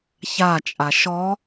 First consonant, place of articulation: palatal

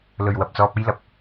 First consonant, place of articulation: alveolar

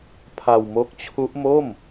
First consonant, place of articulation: labial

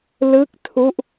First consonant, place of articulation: alveolar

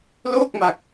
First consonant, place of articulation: alveolar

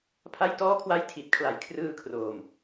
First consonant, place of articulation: labial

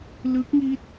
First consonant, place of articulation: alveolar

